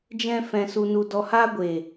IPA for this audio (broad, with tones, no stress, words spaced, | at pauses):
d͡ʒɛ̃˧ fɛ̃˨su˨nu˨ dɔ˨haː˧ ɡʷeː˨